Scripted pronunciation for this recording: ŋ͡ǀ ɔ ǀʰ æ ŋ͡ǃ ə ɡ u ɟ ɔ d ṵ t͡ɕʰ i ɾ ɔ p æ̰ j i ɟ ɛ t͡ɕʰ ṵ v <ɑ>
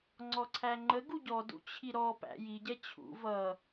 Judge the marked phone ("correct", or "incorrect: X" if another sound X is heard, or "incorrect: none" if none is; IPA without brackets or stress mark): incorrect: ʌ